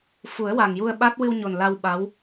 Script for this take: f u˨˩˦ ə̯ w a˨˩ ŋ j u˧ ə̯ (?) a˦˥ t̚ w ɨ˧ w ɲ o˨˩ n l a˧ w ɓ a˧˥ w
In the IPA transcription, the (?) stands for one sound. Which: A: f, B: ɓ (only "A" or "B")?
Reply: B